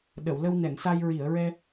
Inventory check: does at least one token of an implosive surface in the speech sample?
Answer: yes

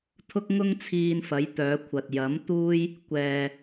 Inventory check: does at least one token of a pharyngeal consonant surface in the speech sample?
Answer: no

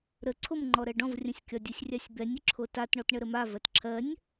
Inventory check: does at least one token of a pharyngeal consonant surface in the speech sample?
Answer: no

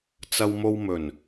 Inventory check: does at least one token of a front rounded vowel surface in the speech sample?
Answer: no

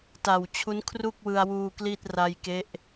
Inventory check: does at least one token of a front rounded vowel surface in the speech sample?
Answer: no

